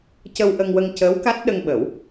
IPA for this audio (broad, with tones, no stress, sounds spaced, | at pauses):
c ə˧ w ʔ ə˧ ŋ w ə˧ ŋ c əː˧˥ w k a˦˥ t̚ ɗ ə˧ ŋ ɓ ə˨˩˦ w